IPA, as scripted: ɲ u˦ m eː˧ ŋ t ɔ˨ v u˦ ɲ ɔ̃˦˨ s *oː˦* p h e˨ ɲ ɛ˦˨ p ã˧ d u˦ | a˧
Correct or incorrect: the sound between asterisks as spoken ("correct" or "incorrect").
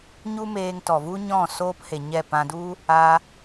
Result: correct